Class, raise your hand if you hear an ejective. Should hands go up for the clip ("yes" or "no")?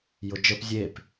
no